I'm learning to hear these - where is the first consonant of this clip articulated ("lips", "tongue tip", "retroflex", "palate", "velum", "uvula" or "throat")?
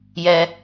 palate